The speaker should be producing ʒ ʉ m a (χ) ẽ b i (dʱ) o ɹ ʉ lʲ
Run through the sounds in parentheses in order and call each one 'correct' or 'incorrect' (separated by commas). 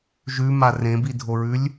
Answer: incorrect, correct